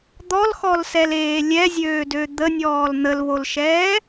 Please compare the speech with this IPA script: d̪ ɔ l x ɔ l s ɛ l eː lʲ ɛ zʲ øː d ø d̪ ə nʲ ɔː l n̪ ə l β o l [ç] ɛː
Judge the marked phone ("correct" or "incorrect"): incorrect